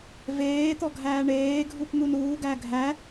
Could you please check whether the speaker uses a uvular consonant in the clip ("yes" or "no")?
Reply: no